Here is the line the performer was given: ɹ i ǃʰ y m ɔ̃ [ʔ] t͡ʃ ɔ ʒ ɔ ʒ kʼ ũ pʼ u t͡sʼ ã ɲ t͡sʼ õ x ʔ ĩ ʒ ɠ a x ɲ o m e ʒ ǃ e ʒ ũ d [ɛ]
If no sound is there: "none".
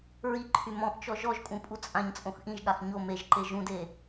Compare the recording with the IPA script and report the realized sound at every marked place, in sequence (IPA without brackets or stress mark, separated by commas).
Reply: ʔ, e